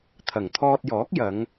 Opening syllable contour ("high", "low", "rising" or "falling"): low